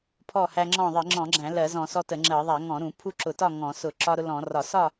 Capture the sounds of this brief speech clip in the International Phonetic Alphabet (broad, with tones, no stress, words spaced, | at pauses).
pʰɔ˥˨hæ˦ŋ͡ǁɔ̃˥˨ ðˤi˧˩˧ ŋ͡ǁɔ̃˧˩˧ɡ͡ǁæ̃˧˩˧ lɜ˧˩˧zɔ̃˧˩˧ sɔ˦tə˧˩˧ŋ͡ǁɜ˧˩˧ ðˤæ˧˩˧ ŋɔ̃˧˩˧ɾũ˧˩˧ pʰu˥˨ǁʊ˧˩˧tɒ˥˨ ŋɔ̃˧˩˧sʊ˧˩˧ ǁɒ˦ɾʊ˦lɔ̃˧˩˧ rɒ˧˩˧ sɒ˥˨